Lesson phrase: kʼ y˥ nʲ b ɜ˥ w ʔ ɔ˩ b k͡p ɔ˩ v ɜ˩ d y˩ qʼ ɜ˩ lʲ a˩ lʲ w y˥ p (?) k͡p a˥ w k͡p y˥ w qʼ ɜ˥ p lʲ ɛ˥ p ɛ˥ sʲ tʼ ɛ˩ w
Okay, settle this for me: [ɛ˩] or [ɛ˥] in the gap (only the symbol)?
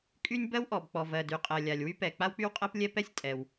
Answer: ɛ˩